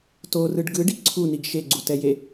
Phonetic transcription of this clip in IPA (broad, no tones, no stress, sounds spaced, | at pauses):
t o r ɯ ɖ ɡ ɯ ɖ i ǀʰ u n i ɡ ʃ e ɡ͡ǀ u t ɛ j e